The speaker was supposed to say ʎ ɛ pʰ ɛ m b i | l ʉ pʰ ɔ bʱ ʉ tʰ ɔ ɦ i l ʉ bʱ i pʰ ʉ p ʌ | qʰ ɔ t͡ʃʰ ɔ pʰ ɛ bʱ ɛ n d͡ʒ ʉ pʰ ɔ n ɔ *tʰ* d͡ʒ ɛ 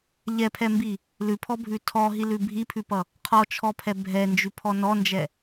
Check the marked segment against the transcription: incorrect: n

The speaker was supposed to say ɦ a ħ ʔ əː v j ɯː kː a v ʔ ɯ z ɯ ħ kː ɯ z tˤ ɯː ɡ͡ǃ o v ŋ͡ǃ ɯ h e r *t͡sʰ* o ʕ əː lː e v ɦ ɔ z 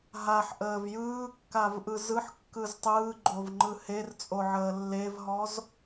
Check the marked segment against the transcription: incorrect: t͡sʼ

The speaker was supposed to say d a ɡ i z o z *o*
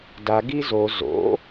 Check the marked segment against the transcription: incorrect: o̰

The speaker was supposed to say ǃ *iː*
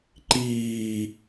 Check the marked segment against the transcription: correct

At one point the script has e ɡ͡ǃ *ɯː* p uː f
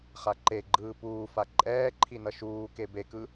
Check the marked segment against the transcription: correct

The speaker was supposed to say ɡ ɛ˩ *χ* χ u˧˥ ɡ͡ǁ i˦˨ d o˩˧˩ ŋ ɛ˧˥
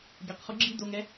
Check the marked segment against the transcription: incorrect: q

